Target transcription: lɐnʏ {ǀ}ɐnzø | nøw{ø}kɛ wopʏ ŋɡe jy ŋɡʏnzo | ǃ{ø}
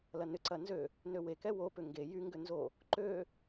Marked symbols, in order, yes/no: yes, no, yes

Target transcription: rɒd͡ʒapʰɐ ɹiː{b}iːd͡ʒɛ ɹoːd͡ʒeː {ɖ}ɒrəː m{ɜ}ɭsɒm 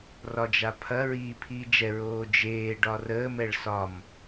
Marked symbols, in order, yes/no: no, yes, no

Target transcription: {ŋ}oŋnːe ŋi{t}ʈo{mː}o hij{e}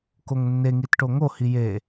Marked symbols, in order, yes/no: no, yes, no, yes

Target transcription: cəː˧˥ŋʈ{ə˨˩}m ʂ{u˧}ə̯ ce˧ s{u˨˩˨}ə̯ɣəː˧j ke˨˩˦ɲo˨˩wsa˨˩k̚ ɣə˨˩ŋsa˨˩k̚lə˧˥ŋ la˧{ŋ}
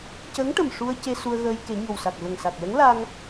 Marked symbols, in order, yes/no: yes, yes, no, yes

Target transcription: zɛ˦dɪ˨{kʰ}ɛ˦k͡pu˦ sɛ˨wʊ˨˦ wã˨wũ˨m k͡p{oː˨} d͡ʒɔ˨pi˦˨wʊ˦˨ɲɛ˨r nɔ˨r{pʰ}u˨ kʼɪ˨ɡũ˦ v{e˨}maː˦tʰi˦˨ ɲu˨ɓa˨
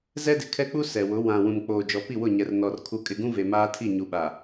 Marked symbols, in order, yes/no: yes, yes, no, yes

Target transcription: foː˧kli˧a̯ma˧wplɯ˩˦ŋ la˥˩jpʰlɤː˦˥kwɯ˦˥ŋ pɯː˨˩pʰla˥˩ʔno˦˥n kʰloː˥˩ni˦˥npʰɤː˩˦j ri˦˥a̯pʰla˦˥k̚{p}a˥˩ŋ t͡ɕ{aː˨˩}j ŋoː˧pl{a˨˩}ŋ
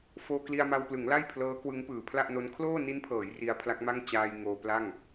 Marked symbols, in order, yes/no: no, no, no

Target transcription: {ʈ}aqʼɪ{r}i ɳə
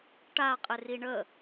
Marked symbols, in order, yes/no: yes, yes

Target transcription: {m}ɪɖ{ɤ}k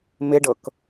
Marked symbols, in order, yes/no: yes, yes

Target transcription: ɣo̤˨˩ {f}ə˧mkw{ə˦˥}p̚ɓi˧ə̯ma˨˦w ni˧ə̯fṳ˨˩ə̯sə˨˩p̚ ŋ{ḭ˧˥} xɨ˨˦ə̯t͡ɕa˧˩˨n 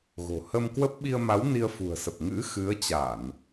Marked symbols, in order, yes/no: no, yes, no

